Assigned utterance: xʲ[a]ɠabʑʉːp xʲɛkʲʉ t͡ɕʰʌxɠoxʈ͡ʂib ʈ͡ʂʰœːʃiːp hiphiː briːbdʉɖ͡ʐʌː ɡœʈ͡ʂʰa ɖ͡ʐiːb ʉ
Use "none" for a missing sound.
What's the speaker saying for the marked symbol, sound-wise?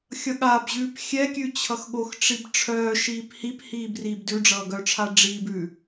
ʌ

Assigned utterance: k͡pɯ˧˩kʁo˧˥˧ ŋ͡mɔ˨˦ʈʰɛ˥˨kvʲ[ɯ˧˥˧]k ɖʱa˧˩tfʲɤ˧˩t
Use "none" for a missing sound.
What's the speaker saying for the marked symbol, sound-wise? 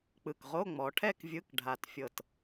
ɯ˧˥˧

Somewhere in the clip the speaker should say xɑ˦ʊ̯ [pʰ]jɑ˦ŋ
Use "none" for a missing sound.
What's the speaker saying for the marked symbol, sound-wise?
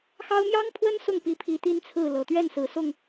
m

